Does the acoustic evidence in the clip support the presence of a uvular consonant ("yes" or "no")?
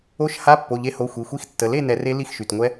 no